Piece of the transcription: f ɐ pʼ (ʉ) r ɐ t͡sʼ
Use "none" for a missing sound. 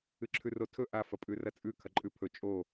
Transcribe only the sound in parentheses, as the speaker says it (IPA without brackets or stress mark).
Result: ʉ